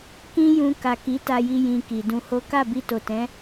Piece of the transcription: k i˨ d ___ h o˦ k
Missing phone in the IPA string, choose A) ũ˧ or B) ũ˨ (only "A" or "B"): A